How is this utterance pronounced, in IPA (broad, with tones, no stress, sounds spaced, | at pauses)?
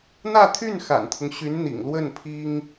n̪ ä˥˧ t̪ʰ y˥˩ n x a̰˨˩ n t̪ʰ ʊ˦ ŋ ɕ y˧˥ n n̪ ḭ˨˩ ŋ l w ə˥˩ n pʰ i˥ ŋ